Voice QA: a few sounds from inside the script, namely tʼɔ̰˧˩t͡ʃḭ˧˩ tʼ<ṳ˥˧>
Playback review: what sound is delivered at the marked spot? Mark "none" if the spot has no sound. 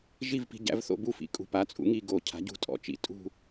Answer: ṳ˥˧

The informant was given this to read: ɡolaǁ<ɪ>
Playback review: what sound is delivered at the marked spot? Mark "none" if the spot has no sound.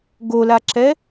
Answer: ɛ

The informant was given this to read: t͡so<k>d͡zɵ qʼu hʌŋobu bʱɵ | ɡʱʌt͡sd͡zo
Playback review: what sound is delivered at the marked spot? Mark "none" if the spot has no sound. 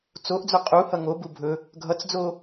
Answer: ʔ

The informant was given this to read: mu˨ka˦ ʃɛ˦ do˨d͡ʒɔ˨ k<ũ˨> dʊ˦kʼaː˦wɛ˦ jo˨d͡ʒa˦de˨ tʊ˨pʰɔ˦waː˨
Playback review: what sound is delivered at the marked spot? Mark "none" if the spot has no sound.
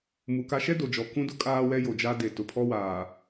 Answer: ũ˦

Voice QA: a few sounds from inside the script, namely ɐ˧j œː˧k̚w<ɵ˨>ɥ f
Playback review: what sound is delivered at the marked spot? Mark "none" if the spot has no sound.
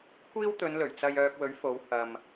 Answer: ɵ˨˥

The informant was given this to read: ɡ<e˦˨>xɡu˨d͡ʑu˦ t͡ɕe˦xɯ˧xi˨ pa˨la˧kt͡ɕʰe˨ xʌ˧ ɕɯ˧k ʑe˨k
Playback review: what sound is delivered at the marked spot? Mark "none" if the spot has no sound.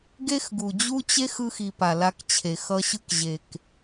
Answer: e˦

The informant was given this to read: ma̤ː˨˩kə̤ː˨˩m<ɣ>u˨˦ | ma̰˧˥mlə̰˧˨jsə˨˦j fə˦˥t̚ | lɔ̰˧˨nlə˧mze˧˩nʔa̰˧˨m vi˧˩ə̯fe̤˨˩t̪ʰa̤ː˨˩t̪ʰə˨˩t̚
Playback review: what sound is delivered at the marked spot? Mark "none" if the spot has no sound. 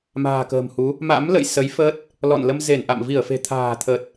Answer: h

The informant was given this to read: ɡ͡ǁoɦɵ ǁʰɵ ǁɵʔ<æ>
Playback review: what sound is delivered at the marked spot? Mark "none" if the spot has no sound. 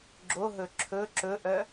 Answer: œ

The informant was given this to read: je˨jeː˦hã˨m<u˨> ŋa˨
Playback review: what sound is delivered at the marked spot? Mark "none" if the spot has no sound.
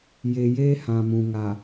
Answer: ũ˨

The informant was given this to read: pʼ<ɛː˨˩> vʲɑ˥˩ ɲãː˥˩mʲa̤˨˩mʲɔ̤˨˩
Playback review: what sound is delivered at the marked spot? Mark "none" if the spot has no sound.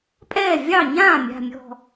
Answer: ɛː˥˩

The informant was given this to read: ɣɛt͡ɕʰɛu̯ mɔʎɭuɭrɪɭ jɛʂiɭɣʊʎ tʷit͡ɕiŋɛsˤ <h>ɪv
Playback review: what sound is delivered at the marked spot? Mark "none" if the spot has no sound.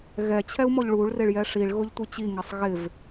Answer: ɣ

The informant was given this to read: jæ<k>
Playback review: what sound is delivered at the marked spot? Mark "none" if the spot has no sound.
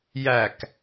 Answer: k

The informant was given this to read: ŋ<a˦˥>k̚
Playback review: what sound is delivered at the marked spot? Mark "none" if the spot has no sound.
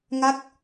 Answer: a˦˥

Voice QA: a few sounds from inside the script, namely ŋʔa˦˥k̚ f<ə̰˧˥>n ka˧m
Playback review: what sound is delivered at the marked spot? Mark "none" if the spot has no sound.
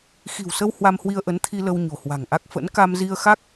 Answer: ə̰˧˥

